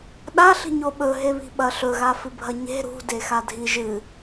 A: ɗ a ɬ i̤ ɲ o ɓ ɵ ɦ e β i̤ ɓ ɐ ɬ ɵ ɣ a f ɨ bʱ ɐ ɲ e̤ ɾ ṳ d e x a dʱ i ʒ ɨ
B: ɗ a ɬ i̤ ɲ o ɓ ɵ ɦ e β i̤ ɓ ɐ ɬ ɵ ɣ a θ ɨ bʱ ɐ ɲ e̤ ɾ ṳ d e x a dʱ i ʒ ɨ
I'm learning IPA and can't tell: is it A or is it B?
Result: A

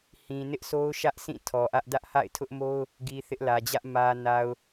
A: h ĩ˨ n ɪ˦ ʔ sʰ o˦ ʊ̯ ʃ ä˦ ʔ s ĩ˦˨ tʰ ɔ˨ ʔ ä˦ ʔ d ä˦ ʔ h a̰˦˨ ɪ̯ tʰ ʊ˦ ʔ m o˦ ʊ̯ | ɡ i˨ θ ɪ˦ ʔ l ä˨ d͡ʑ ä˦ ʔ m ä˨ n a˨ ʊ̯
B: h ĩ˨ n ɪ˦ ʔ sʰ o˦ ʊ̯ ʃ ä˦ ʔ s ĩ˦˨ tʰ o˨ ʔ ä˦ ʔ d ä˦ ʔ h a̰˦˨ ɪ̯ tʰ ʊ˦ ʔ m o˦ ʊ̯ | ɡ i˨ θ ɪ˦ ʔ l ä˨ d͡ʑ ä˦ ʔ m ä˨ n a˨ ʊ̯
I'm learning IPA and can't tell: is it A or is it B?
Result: A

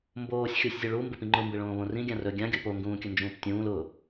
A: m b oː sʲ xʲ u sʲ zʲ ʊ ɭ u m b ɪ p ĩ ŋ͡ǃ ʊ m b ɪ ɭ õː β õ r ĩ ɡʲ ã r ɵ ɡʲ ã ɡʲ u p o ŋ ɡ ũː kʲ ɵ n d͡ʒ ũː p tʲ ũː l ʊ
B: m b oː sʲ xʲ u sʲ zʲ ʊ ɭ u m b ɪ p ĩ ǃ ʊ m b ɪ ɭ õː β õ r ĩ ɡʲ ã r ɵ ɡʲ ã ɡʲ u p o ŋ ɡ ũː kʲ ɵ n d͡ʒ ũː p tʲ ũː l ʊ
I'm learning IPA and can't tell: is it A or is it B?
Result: A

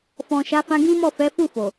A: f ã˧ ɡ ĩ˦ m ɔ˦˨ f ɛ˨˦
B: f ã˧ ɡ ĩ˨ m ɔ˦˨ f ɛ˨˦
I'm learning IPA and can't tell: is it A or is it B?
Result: A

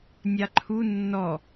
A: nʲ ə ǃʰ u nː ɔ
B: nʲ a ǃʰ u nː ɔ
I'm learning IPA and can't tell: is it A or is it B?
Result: B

